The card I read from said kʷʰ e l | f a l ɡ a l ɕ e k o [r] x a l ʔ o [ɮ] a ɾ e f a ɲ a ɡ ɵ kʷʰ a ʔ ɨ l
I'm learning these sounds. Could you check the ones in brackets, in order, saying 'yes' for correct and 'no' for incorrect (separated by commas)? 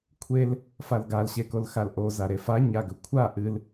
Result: no, no